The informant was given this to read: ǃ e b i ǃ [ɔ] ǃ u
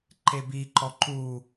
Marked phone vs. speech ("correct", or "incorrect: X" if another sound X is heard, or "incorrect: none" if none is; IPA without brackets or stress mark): correct